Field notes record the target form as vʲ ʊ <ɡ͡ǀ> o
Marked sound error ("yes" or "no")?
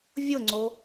yes